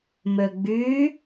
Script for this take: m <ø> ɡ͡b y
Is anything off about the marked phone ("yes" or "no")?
no